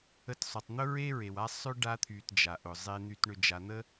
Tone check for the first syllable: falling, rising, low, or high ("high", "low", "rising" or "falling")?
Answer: low